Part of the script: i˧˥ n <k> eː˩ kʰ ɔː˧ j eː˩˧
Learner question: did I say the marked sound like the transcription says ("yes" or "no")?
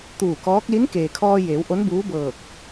yes